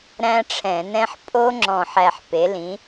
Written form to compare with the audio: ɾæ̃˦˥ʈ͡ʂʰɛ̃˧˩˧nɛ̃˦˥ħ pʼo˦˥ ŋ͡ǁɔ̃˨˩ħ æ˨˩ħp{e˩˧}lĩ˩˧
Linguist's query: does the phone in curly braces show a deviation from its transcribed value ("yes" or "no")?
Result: no